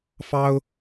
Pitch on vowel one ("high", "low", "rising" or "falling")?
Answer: high